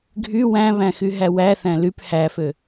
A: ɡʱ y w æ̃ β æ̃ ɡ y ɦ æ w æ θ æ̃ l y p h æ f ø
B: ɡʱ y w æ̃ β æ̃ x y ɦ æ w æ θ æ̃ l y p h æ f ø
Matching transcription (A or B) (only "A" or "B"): B